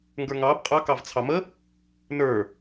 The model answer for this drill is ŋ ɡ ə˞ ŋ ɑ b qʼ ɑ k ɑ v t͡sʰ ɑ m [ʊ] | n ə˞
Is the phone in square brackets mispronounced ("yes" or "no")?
yes